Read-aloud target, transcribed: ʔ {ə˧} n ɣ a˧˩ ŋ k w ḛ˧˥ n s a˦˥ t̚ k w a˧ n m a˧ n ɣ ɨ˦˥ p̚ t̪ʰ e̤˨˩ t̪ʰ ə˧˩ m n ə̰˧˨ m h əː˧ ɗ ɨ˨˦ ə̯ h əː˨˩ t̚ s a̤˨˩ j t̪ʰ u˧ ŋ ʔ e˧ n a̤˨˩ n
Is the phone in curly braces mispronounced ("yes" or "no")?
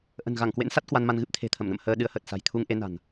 yes